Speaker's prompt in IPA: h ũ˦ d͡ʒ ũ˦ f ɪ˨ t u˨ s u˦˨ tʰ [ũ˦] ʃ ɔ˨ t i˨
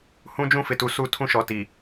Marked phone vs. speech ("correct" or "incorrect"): correct